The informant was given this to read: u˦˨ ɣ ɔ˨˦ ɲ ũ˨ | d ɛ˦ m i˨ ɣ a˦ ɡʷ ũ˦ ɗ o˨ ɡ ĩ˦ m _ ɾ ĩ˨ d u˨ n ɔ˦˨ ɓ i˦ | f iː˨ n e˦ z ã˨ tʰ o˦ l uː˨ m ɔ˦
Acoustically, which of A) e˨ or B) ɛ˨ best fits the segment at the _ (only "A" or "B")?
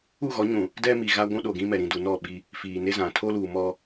B